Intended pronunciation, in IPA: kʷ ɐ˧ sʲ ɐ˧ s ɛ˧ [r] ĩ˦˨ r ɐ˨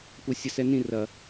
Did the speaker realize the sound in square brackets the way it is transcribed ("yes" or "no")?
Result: no